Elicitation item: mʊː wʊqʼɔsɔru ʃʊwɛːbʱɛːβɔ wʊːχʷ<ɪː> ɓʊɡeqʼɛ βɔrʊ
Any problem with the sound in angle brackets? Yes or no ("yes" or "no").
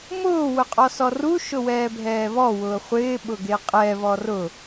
no